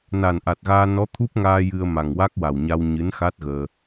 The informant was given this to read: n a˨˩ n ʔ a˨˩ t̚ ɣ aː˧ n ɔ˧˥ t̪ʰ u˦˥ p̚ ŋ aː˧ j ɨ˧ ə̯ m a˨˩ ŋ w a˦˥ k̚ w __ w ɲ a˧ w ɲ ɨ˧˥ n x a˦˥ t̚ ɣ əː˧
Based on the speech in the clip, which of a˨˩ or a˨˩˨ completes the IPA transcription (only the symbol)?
a˨˩